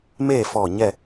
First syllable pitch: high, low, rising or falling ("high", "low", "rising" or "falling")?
falling